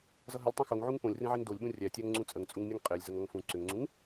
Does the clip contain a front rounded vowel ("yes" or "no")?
yes